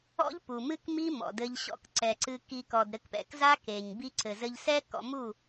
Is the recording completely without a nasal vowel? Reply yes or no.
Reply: yes